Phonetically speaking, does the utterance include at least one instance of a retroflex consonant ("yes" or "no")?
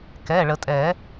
yes